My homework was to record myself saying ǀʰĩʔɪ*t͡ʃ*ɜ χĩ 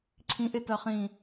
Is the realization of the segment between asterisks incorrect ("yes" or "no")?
yes